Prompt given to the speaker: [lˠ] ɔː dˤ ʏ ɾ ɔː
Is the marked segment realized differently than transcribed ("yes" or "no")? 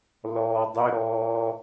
yes